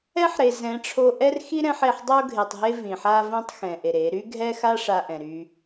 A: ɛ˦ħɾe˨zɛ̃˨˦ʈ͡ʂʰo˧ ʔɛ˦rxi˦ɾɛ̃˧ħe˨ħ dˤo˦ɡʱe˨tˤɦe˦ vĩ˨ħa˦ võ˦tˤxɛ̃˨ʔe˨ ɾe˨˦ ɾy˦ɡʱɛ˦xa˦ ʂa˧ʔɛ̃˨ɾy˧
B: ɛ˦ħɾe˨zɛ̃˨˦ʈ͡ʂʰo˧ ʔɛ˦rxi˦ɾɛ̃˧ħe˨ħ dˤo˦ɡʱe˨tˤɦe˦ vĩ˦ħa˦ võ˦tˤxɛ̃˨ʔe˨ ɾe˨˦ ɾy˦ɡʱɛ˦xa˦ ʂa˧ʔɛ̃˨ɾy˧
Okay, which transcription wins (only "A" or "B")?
A